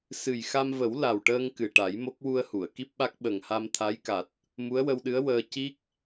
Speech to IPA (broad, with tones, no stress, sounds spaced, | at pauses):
s ɨ˨˩ j x a˧ m v ə˨˩˦ w l a˨˩ w ʈ əː˧ ŋ k ɨ˨˩ ʈ a˨˩˦ j m o˦˥ k̚ w u˧ ə̯ h u˨˩˨ ə̯ k i˦˥ p̚ ɓ a˦˥ k̚ ɓ ə˨˩ ŋ h a˧ m t̪ʰ a˧˥ j k a˨˩ t̚ | m u˧˥ ə̯ w ə˧ w ɗ ɨ˧˥ ə̯ w əː˧ c i˦˥ k̚